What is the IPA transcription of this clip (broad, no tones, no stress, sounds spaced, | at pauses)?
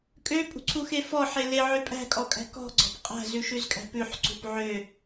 kʼ ø pʼ ṳ ǀʰ u x e f ɔ ħ e l e ʕ ø pʼ æ̤ kʼ ɔ kʼ æ̤ k ɔ̤ ɡ͡ǀ ɔ̤ p qʼ æ̤ z ʉ ʃ ʉ z kʼ æ̤ p ʉ ħ ǀ ṳ p ʕ ø